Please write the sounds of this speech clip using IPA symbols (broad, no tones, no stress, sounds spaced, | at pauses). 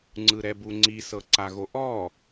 ŋ͡ǀ ɯ ɾ ɛ b u ŋ͡ǀ i s ɤ ǀ a ɣ o ʔ ɔ